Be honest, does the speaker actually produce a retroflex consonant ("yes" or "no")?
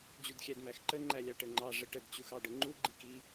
yes